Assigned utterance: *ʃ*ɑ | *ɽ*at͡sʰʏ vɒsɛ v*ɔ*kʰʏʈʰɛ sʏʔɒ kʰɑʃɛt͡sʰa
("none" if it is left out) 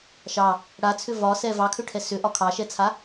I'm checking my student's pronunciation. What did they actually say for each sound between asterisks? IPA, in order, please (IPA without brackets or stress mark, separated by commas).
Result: ʃ, ɽ, ɑ